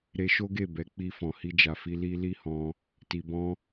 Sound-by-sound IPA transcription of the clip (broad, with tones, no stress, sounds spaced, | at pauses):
ɾ e˧ ʃ o˦ ɡ e˦˨ b ɛ˨˦ k͡p i˧ f ɔ̃˨ h i˧ d͡ʒ a˨ f i˧ l i˧ l i˦ h ɔ̃˧ | t i˧ b ɔ̃˦